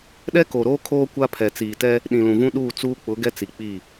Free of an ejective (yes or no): yes